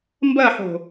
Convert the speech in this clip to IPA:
m b ɐ ħ o̤

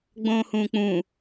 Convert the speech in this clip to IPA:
ɡ͡b õː h ũː k͡p ũː

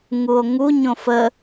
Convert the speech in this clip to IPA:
ŋ u o̯ ŋ u ɲ õ f ə

